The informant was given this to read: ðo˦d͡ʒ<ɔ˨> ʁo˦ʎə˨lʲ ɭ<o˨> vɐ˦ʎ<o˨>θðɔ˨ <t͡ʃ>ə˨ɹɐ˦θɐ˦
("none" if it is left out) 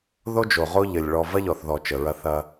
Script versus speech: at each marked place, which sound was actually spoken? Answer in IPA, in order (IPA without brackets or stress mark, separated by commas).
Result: o˨, ɔ˨, ɔ˨, t͡ʃ